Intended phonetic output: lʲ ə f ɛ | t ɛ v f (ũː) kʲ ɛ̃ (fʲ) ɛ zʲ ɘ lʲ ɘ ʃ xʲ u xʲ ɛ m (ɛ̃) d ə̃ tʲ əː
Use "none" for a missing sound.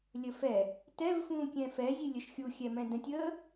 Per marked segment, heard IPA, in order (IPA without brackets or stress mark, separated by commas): ũː, f, ɛ̃